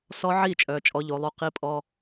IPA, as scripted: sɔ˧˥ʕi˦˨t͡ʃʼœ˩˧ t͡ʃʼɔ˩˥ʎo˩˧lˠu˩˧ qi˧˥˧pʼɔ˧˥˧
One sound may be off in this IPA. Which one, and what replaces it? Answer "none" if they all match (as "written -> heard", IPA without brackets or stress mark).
none